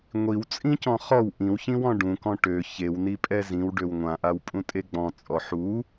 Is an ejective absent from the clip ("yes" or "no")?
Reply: no